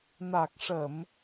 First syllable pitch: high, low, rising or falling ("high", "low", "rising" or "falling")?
low